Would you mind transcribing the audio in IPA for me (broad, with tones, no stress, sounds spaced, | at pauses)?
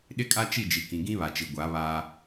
ɗ ɪ˦ kʼ a˦ t͡ʃ i˦˨ d͡ʒ i˨ k ĩ˨ ɡ ĩ˦ β a˨ t͡ʃ i˨ ɡʷ a˨˦ β aː˦